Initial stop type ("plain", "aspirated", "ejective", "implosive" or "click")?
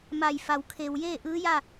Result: aspirated